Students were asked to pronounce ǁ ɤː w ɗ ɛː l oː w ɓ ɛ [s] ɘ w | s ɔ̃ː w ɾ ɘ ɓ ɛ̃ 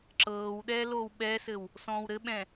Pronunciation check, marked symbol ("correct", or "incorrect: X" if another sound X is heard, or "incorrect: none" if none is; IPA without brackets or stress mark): correct